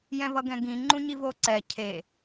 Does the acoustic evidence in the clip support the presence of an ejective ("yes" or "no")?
no